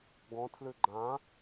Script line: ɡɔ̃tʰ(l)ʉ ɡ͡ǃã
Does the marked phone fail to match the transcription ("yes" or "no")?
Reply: no